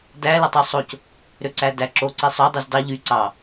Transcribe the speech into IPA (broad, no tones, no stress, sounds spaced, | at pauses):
d æ l ɯ tˤ ø sˤ o c | ɾ ø ǀ æ d æ ǁ o ǀ i sˤ ø dˤ y z d ɑ ʎ y ǀ ɑ